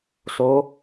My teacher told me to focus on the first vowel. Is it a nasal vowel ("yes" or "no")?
no